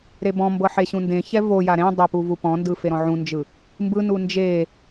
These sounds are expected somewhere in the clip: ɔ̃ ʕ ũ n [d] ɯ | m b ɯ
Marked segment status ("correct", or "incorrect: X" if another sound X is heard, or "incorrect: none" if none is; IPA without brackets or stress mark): incorrect: d͡ʒ